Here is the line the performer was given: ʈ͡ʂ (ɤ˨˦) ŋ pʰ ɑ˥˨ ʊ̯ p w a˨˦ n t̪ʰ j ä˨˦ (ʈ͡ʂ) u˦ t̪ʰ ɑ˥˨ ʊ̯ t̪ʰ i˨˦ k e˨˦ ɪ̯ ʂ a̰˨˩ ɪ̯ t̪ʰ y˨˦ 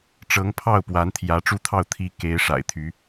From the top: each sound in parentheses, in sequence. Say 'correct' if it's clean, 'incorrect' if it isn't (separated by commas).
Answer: correct, correct